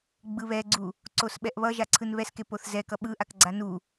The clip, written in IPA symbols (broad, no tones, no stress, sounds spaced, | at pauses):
ɡ͡b ɯ β ɛ ɡ͡ǀ u | ǀ o s ɓ ɛ ʔ β ʌ ʒ a ǀʰ ɯ n β ɛ s k e p o θ z ɛ k ʌ ɓ ɯ ʔ a k ɡ͡ǀ a n u